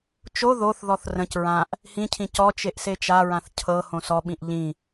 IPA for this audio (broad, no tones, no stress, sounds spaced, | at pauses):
t͡ʃ o ð o θ ð ɔ θ r ə̃ c ɹ ã ʔ | h ĩ cʰ ĩ c ɔ t͡ʃ e ʔ s e t͡ʃ a ɹ ã θ cʰ ɤ h õ s ɔ ɓ ĩ ʔ ʎ ĩ